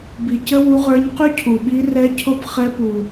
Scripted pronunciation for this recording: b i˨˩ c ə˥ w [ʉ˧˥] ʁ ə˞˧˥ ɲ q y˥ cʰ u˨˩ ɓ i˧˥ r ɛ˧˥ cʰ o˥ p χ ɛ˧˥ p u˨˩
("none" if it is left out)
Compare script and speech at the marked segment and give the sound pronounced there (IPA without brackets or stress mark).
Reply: u˧˥